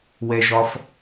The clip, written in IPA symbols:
w ɛ ʒ ɒ f

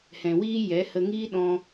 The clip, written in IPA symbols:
h ɛ̃˨ w iː˦ j ɛ˨˦ h ə˧ ŋ iː˦ ɗ ɔ̃˧

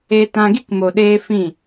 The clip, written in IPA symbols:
e˧ t ã˧ ɡ i˦ k m o˨ ɗ eː˧ f ĩ˦˨

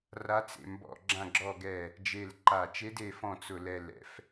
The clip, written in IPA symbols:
r a˧˥ t͡s ḛ˦˨ m b ɔ̰˦˨ ɡ͡ǁ ã˦˨ ɡ͡ǁ ɔ˦˨ ɡ ɛ˦˨ | d͡ʒ e˦˨ l ǃ a˦˨ t͡ʃ e˧˥ d e˦˨ f ɔ̃˦˨ t͡s ʊ˦˨ l ɛ˦˨ l ɛ̰˧˥ f

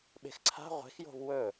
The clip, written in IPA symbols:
ɓ e̤ x ǀʰ a̤ ʁʷ e̤ x j o̤ v w ɵ

